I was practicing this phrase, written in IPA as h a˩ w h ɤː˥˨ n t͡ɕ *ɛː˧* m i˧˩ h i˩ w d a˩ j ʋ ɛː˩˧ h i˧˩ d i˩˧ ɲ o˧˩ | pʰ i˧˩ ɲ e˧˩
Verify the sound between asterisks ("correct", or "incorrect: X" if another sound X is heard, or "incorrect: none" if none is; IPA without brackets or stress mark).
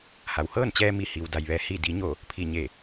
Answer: correct